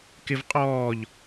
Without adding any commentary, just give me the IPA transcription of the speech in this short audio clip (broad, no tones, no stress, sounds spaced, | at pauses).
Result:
k ɪ v qʼ ɔː ʎ